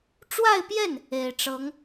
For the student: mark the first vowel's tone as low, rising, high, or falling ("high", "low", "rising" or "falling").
falling